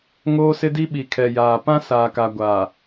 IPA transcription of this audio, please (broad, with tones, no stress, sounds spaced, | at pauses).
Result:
ŋ oː˦ s ɪ˦ d i˦ ɓ i˨ kʰ ɛ˨ j aː˨ p ã˦ s aː˨ k a˨ ɡʷ aː˨